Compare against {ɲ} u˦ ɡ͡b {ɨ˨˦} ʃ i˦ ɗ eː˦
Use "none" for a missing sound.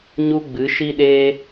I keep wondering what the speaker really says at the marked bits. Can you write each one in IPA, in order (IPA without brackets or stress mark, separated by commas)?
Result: ɲ, ɨ˨˦